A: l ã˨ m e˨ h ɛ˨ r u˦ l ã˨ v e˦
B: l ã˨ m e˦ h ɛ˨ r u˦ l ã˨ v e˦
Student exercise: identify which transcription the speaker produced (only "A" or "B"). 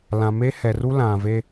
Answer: B